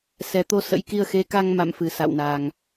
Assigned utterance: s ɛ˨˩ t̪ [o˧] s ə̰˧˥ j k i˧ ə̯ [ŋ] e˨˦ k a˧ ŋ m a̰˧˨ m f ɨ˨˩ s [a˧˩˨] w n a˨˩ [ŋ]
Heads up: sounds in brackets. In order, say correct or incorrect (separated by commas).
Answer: correct, incorrect, incorrect, correct